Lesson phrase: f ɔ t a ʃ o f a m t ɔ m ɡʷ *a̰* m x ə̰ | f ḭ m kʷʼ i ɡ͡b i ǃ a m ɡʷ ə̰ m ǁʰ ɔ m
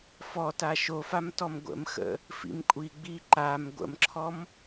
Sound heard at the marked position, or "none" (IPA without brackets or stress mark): ə̰